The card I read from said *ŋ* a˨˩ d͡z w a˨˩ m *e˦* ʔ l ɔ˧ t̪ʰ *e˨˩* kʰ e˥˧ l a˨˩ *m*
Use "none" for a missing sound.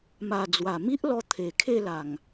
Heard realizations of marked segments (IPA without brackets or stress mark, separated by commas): m, i˦, e˨˩, ŋ